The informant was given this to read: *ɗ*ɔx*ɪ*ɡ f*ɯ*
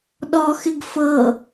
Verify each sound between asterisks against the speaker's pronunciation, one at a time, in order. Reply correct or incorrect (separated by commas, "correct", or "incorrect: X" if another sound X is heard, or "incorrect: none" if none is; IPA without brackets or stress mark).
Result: correct, correct, incorrect: ɤ